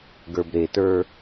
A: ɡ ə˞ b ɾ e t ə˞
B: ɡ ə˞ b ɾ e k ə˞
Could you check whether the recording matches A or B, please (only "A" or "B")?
A